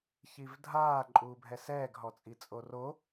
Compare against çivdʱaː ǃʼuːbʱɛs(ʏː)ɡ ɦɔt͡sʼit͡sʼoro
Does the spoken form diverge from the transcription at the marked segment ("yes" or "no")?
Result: yes